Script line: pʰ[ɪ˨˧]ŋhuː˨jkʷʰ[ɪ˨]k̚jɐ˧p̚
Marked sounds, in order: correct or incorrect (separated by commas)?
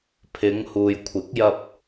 correct, incorrect